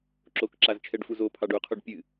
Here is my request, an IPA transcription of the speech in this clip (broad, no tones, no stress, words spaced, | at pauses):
ǁokǁazt͡ʃʰɛɖfuz opʰɑɖ uqʰoɖ pʲɨ